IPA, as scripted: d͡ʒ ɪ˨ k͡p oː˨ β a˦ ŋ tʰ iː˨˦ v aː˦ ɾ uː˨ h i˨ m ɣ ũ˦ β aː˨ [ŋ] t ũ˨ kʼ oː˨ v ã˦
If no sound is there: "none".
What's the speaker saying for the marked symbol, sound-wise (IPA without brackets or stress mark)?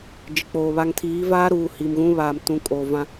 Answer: m